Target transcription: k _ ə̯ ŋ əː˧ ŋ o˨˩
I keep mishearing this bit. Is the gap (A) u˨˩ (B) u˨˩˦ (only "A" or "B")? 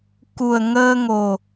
A